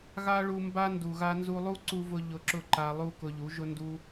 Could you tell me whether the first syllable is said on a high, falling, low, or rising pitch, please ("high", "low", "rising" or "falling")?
high